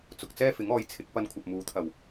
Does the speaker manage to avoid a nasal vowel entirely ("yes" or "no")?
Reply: yes